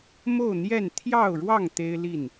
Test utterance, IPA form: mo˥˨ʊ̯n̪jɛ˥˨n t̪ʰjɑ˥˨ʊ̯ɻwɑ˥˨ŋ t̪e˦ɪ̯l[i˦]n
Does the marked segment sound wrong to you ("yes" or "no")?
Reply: yes